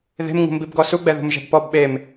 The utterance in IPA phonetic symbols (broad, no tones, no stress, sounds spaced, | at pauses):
ð e̤ m ŋ ṳ m b i b ɡ ɔ s u ɡ͡b ɛ ð ṳ m ʒ ɛ̤ b p ɔ b ɓ e m